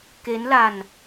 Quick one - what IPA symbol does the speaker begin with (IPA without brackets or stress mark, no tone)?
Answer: k